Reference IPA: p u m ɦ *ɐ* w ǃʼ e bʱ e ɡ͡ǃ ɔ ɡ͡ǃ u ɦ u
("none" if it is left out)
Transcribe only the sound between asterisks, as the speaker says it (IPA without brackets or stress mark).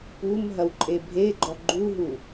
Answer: ɐ